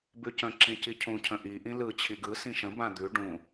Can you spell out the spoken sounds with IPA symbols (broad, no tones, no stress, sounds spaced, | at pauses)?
b ʉ c ə̃ ǁ ĩ c i cʰ ũ cʰ ə̃ ʔ i ʔ ĩ l ɯ t͡ɕʰ i ɡ ɯ s ĩ ʃ ə̃ b ã d̪ ʉ ɖ ũ